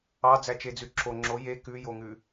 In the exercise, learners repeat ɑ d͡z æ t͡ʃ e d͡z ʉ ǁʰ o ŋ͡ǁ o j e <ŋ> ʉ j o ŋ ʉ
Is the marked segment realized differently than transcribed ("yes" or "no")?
yes